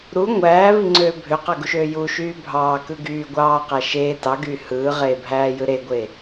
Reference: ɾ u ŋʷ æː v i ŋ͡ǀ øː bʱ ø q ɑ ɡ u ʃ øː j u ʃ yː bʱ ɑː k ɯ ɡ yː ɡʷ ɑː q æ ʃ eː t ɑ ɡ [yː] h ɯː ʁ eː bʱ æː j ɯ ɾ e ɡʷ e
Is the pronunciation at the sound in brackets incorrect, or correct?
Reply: correct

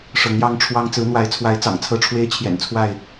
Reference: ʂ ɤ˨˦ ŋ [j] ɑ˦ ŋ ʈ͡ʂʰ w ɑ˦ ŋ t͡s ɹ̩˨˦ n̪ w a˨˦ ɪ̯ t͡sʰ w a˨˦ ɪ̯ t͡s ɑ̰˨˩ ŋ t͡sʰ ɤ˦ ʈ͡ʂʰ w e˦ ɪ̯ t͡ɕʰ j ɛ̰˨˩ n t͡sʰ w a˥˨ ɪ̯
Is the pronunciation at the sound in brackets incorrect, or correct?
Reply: correct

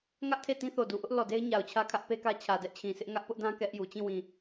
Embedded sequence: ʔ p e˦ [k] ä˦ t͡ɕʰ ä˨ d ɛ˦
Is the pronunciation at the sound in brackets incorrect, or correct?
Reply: correct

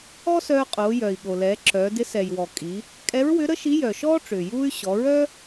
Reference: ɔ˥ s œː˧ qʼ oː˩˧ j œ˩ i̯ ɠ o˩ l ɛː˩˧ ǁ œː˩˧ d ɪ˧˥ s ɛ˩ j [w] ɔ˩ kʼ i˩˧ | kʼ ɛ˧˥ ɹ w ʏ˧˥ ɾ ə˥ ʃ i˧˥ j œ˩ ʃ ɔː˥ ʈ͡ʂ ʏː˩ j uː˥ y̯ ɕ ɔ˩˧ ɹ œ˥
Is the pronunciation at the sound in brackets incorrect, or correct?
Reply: correct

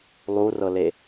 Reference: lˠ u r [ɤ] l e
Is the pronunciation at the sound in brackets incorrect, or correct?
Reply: correct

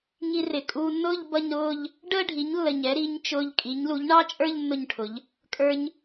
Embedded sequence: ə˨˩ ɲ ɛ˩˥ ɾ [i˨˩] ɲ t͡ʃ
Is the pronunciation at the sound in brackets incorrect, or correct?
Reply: incorrect: i˩˥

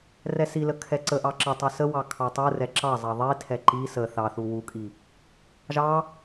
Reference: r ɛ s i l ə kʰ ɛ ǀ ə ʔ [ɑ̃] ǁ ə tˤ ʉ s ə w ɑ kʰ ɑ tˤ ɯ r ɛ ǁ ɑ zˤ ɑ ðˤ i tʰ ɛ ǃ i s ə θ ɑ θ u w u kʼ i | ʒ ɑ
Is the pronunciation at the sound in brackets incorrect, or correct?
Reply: incorrect: ɑ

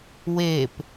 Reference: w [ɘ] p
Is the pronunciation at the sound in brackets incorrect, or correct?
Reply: incorrect: e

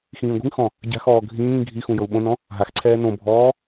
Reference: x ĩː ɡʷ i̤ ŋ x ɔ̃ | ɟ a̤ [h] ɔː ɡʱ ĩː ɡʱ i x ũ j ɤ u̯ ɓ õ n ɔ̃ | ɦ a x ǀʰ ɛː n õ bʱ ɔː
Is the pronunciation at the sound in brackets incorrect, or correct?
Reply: incorrect: x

